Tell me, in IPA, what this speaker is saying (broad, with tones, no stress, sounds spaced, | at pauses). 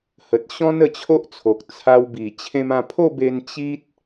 h ə˨ t̚ ɕ ɔ̃˦ n ə˧ t͡ɕʰ o˦ ʔ t͡sʰ o˨ k̚ t͡sʰ a˧ w b i˨˩ t͡ɕʰ ẽ˧ m ã˧ pʰ o˥˧ b e˧ n t͡ɕ i˦ t̚